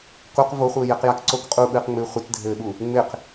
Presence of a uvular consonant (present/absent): present